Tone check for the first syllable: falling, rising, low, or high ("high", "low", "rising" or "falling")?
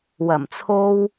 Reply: low